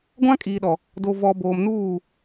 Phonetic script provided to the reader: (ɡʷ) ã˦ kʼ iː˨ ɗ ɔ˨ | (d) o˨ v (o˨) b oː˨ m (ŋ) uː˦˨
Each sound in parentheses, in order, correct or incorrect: correct, correct, incorrect: ɔ˨, incorrect: n

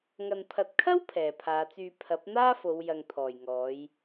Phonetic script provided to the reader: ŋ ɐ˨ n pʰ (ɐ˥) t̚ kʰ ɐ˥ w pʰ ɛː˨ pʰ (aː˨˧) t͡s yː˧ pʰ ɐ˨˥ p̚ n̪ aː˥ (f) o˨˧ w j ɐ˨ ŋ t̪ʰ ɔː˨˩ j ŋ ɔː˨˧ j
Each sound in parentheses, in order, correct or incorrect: incorrect: ɐ˨, correct, correct

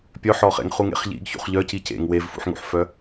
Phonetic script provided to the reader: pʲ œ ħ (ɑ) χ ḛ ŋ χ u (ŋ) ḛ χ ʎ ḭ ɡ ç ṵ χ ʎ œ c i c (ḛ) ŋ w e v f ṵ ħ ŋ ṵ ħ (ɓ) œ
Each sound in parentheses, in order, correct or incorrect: incorrect: ɔ, correct, correct, incorrect: f

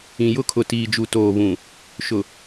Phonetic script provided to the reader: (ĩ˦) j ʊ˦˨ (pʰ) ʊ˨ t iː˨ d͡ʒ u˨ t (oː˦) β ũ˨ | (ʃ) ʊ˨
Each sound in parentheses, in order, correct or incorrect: incorrect: ĩ˨, incorrect: kʰ, incorrect: oː˨, correct

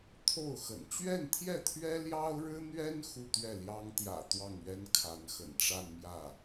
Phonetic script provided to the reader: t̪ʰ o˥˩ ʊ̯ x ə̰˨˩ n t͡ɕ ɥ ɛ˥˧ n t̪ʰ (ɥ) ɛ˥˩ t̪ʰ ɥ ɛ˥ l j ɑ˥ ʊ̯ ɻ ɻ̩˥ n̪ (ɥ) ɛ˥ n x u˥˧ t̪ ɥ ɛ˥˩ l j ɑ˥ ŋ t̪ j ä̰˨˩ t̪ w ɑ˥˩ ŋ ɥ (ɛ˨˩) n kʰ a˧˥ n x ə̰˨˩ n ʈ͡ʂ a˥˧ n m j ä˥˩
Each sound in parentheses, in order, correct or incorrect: incorrect: j, correct, incorrect: ɛ˥

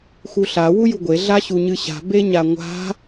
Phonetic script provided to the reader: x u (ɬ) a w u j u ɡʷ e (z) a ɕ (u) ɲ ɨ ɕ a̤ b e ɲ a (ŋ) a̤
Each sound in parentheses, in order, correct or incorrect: correct, incorrect: ɮ, correct, incorrect: ŋʷ

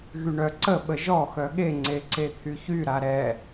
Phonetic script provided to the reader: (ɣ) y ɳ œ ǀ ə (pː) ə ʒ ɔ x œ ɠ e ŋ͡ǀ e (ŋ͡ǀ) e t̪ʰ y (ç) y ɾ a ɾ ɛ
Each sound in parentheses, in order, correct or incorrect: correct, incorrect: ɓ, incorrect: ǀ, correct

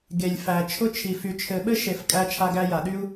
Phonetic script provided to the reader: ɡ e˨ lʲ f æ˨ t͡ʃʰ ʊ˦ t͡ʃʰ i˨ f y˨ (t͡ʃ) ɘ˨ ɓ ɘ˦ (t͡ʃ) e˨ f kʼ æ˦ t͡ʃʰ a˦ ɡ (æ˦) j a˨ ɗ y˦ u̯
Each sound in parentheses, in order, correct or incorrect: incorrect: t͡ʃʰ, incorrect: ʃ, correct

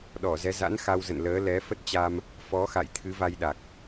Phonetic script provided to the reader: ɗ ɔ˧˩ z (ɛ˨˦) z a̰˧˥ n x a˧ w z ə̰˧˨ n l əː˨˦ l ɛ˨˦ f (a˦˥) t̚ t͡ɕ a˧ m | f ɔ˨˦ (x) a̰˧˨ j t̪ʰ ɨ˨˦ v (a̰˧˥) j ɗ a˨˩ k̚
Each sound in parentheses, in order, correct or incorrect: correct, incorrect: ə˦˥, correct, incorrect: a˧

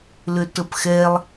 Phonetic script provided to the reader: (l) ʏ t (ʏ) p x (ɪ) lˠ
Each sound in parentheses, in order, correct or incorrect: correct, incorrect: ə, incorrect: ɛ

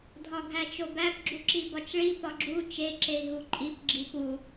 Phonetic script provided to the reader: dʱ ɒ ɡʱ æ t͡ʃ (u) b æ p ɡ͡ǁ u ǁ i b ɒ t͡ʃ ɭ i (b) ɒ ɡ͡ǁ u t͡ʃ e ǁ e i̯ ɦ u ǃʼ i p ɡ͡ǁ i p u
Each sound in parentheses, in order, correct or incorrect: incorrect: o, incorrect: p

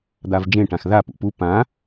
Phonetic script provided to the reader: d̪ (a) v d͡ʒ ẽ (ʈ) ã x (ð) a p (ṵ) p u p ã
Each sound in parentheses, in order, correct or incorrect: correct, correct, correct, correct

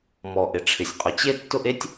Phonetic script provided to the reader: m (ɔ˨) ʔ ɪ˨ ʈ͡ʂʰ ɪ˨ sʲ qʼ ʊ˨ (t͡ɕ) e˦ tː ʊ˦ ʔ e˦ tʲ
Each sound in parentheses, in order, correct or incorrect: correct, correct

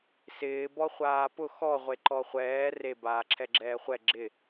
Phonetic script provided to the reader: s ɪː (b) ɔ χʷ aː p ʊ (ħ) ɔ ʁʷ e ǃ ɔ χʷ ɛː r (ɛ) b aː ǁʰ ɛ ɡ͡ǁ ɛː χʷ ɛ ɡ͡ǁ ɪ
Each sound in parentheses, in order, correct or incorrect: correct, incorrect: x, incorrect: e

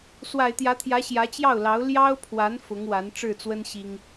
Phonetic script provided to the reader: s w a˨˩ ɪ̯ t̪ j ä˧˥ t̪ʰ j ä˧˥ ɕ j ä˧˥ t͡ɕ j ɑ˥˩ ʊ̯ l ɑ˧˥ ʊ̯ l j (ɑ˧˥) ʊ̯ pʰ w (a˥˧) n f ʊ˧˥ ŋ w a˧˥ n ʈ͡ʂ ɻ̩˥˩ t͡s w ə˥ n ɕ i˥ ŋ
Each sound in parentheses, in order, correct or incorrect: incorrect: ɑ˥, incorrect: a˧˥

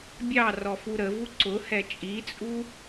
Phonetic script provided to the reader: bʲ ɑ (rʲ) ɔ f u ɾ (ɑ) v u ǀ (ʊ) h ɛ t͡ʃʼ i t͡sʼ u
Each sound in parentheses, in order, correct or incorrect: incorrect: r, incorrect: ə, correct

